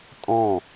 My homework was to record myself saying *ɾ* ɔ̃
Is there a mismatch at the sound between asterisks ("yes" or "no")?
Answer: yes